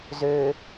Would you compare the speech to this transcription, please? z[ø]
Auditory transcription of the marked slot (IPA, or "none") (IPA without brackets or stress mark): ø